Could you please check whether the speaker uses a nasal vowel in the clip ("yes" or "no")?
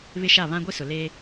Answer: yes